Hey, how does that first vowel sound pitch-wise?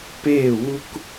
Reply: falling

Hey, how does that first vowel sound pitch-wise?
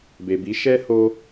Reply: low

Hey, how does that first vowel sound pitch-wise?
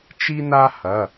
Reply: high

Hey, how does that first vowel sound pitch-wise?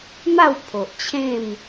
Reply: falling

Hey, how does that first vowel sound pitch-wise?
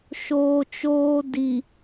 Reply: low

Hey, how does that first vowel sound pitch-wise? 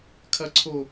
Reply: low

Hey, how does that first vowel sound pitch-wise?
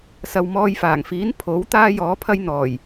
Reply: low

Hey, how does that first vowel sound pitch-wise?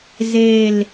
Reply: falling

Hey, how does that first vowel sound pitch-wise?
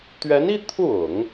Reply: rising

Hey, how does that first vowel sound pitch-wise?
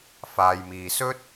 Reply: low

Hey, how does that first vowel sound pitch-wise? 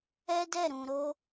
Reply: high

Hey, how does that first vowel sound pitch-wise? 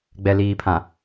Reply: low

